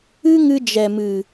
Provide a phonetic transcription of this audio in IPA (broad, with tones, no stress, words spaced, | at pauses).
ɨ˦ ŋɨ˧d͡ʒɛ˨mɨ˨